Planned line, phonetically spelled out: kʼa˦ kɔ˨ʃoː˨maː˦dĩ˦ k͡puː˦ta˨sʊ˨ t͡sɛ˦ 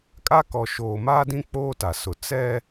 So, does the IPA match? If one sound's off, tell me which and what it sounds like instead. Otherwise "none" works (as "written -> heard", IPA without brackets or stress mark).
uː˦ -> oː˦